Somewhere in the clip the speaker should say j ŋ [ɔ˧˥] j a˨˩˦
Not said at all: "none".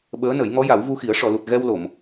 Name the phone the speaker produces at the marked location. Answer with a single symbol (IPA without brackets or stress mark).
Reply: ɔ˧˥